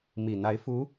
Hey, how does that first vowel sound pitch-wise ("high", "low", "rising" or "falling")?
low